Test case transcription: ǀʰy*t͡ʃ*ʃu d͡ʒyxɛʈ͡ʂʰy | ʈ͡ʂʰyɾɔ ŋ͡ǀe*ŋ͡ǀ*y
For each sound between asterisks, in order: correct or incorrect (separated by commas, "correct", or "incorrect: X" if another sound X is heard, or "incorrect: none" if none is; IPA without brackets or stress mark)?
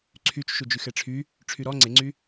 correct, correct